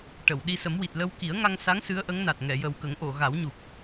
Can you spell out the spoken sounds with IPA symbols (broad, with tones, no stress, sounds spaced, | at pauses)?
ʈ ə˨˩˨ w ɗ i˧ s ə˨˩˦ m w i˨˩ t̚ l ə˧ w k i˨˩˦ ə̯ ŋ a˧ ŋ s a˧˥ ŋ s ɨ˧˥ ə̯ ʔ ə˧˥ ŋ n a˨˩ t̚ ŋ ɛ˨˩˨ j ə˨˩ w k ə˨˩˦ ŋ ʔ o˨˩˨ ɣ a˨˩˦ w ɲ u˨˩ p̚